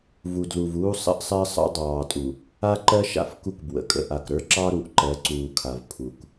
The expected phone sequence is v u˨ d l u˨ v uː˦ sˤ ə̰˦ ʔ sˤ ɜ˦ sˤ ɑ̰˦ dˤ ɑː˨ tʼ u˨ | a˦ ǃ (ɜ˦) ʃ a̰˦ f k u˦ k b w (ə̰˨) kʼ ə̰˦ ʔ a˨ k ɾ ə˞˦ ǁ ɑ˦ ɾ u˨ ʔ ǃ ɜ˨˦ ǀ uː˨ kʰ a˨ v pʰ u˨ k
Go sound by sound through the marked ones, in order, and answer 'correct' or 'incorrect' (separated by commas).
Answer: correct, correct